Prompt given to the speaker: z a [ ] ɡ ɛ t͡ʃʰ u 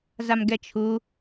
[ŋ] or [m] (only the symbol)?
m